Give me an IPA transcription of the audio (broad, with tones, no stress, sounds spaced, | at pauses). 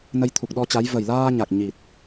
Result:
n ə˧ j t̪ʰ u˨˩ k̚ ɗ ɔ˧ t͡ɕ a˨˦ j v ə˨˩ j l aː˧ ɲ a˨˩ k̚ ɲ i˨˩ t̚